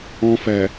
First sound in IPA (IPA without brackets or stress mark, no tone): ɔ̃